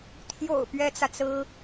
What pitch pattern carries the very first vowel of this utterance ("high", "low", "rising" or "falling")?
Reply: low